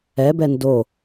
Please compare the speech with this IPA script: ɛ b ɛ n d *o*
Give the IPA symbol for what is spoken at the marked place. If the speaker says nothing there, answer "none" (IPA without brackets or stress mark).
o